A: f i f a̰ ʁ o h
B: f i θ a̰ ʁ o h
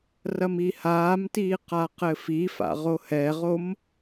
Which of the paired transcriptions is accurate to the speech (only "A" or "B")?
A